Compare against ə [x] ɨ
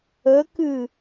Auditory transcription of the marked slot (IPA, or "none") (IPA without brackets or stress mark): k